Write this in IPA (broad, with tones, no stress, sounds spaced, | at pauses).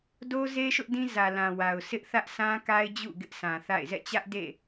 d o˦ z e˦ ʃ ʊ˦ ʔ d ĩ˦ z ä˨ l ã˨ w a˨ ʊ̯ s ɪ˦ ʔ θ ä˦ ʔ sʰ ã˦ k a˦ ɪ̯ d͡ʑ ṵ˦˨ ɡ ɪ˦ ʔ s ã˨ θ a̰˦˨ ɪ̯ z ɛ̰˦˨ t͡ɕ ä˦ ʔ d ḛ˦˨